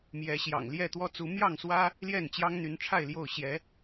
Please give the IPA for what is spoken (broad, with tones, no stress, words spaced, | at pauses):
mjɛ˨˦ ɕjɑ̰˨˩ŋljɛ˥˨t̪wɔ˦t͡su˨˦ mjɑ˥˨ŋswä˦ | ljɛ˥˨nt͡ɕjɑ˦ŋn̪y˨˦nʈ͡ʂʰa˥˨ɪ̯ ljo˥˨ʊ̯ ɕjɛ˨˦